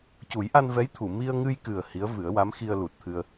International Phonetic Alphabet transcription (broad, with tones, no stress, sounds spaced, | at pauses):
c u˨˩˦ j ʔ a˧ n v ɛ˧˥ j t̪ʰ u˨˩˨ m i˧ ə̯ ŋ ɨ˧ j k ɨ˨˩ ə̯ h i˧˥ ə̯ v ɨ˨˩˦ ə̯ w a˧˥ m x i˧ ə̯ l u˨˩ t̚ t̪ʰ ɨ˧ ə̯